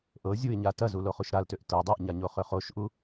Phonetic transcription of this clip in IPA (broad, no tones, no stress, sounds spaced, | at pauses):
ʔ ɤ zʲ u ɪ̯ ɲ a t ɐ z u l o χ u ʃ ɾ a l t ø ʔ t ɤ dˤ a ʔ ɲ a ɲ o χ ø χ o ʃ ʔ u